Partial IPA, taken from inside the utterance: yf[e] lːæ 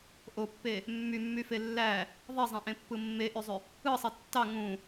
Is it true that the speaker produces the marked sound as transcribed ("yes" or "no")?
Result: yes